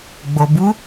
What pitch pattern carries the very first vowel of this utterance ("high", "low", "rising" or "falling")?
low